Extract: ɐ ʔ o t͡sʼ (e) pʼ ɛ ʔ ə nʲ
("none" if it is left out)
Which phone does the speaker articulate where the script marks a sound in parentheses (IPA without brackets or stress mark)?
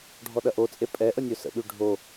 e